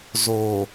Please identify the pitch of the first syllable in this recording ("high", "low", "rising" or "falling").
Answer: low